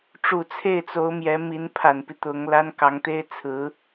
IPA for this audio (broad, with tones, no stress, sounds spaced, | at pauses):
ʈ͡ʂ u˨˩ t͡sʰ e˥˩ ɪ̯ t͡s o˧˥ ʊ̯ m j ɛ˧˥ m i˧˥ n pʰ a˨˩ n p i˦ t̪ ʊ˧˥ ŋ l a˥ n k ɑ˧˥ ŋ t̪ e˥ ɪ̯ t͡sʰ ɹ̩˧˥